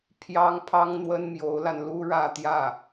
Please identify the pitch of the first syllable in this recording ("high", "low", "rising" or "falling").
high